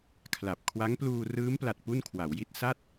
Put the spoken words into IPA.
kʰla˨˩p̚ kʰwa˦˥ŋpluː˧ rɯː˦˥mpla˨˩t̚ pu˥˩nkʰwa˩˦wji˥˩t̚ sa˥˩t̚

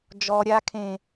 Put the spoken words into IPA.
d͡ʒɔ ɾʲa kʰẽ

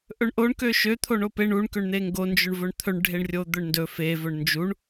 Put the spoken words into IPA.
ʔɵɳʔoɳ køʃø t̪ʰoɳope ɳuɳ køɳn̪eŋɡo nd͡ʒɵɳvɵɳt̪ʰɵɳ ɖʱeɳrʲod̪ɵɳndɵ fe vɵɳnd͡ʒuɳ

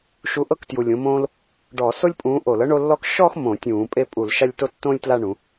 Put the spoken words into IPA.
ʃu˨˥ ʔɤ˥ktju˨˩lʲõ˨˥mõː˥l | ɖɔ˧˩˧so˥lʲpʼũː˨˥ ʔo˧˩˧lɤ˥ɳo˥˧lːɔ˥k ʃɔ˥˧x mõ˧˩˧tʲũː˧˩˧ pʼe˥˧pʼu˧˩˧lʃa˥˧lʲto˥ tːõː˥lʲtla˥˧ɳũ˩˧

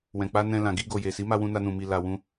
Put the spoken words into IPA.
wɛ̃˨k͡pa˧ nɛ̃˧ lã˨ ɡi˧ ɡo˨je˨si˨˦ ma˧wũ˧na˧nũ˨ mi˧la˧ wũ˧

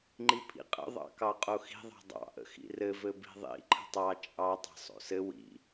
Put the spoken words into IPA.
ŋ͡ǃipʰḭqʼə̰ ðˤɑ̰kɑqʼoxi̤ ðˤɑ̤dˤɑ̰ ʔə̰xḭrɘ vɘbi̤ðˤḭ ǃʰə̤tˤɑ t͡ʃʼɑ tˤɑ̤sˤo̰sɘ wḭ

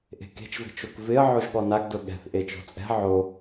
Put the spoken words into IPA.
ʔe̤ke̤t͡ʃve̤t͡ʃok vɪə̯ ʕoʒɠɔnaɡdʊ ɠɛ̤θ ʔet͡ʃɔ̤t͡sʼɛ̤ ʕo

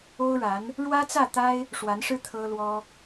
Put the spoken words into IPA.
o˥ʊ̯ɻa˧˥n | ɻwä˥t͡sä˥˩t̪a˥ɪ̯ | ʂwa˧˥nʂɻ̩˥ t̪ʰɤ˥lwɔ˥

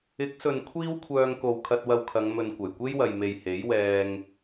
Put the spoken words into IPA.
ɪ˨˥k̚sɵ˨n kʷʰiː˥wkʷʰœː˧ŋko˨w kʰɐ˧t̚wɐ˧wkʰɐ˨˧ŋ mɵ˨nkʷɐ˨˩jkʷe˥jwɐ˨j me˨jhe˨˥jwɛː˧ŋ

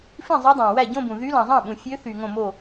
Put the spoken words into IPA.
fĩ˥˩zˤɯ˧˥ dˤæ̃˨wæ˥˩ɟõ˥˧bũ˨ ðy˧˥lɑ̃˨zˤɑ̃˥˩ɓũ˨ fʲø˧˥θy˨ ŋõ˥˩mo˥˩

